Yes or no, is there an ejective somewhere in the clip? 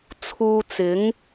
no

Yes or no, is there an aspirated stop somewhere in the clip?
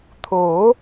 yes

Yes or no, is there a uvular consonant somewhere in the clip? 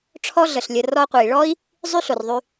yes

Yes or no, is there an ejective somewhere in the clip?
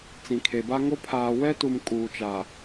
yes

